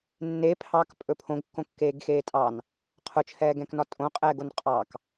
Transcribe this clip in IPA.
nː e pʰ ɑ k pʼ ɵ pʰ õ ɡ kː õ kː eː ɡ x eː tʼ ɑ n | qʰ ʊ t͡ʃʰ ɛː ɡ ɛ̃ k n ɒ tʼ õ qʼ ɛː ɡ o n qʼ ɑ k

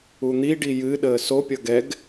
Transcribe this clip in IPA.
u n̪ i ɖ i j ɨ ɗ əː s o pʲ ʌ ɡ ɛ ɡ

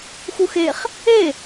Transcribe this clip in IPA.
x u x e χ | e

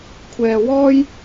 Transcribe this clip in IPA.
kʷʰ ɛː˨ w ɔː˥ j

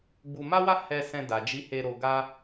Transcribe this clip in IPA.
ɡ͡b u˧ m a˦ w a˦ h ɛ˧ s ɛ̃˧ d a˨ d͡ʒ i˨˦ h e˧ ɾ o˧ ɡ a˦

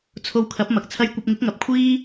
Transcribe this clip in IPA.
t͡sʰ o˧ w kʰ ɐ˨˥ p̚ m ɐ˨ k̚ t͡sʰ ɐ˧ j kʷ ɐ˧ p̚ ŋ ɪ˨˥ k̚ ŋ ɐ˨˥ p̚ kʷʰ iː˥

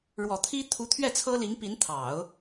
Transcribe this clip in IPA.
ɻ w ɔ˨˩ t̪ʰ i˥ t̪ʰ u˧˥ t̪ʰ ɥ ɛ˥˩ t͡sʰ ɤ˥ l i˧˥ ŋ p i˧˥ n t̪ʰ ɑ˨˩˦ ʊ̯

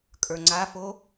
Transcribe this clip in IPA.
kʼ ə˞ ŋ͡ǀ a f o

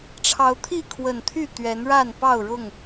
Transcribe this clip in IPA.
ʈ͡ʂʰ ɑ˨˦ ʊ̯ t̪ʰ i˥˨ kʰ w ə˨˩ n t̪ʰ y˥˨ t̪ ɥ ɛ˨˦ n ɻ a˥˨ n p ɑ˥˨ ʊ̯ ɻ ʊ˥˨ ŋ

